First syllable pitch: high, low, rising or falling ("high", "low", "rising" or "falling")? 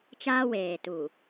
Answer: high